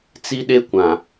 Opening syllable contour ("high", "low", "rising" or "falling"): high